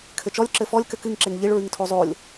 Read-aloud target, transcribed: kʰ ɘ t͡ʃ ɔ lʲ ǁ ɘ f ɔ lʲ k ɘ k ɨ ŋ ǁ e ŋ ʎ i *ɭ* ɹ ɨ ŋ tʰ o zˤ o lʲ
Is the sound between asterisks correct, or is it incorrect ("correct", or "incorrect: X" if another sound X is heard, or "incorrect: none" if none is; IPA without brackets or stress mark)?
correct